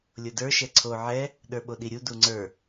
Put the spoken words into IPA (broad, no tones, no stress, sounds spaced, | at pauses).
lʲ o d ə˞ ʃ ɛ ǀʰ o ʕ ɛ | ɗ ə˞ ɓ o ɗ i ɾʲ u d u ŋ͡ǀ ə˞